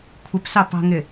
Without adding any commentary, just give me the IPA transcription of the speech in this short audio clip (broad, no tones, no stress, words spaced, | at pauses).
kʷʰɪpsɑpɑ̤ŋɪ